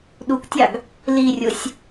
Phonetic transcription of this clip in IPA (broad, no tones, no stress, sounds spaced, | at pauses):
ɗ u k tʲ ɑ ɡ | l i rʲ ʊ sʲ